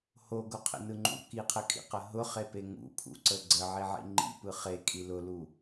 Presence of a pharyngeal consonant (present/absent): present